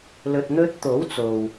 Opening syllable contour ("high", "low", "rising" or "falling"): low